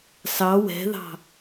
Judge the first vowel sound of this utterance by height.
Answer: low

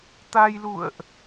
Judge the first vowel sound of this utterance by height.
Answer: low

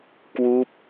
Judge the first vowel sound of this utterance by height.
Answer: high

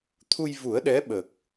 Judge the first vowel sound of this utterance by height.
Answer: high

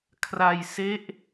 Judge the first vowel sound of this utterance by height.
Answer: low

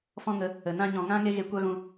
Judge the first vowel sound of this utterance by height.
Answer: mid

